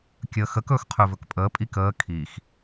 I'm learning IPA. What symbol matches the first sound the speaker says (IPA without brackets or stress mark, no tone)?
kʲ